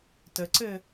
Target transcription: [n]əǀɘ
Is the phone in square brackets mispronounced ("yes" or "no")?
yes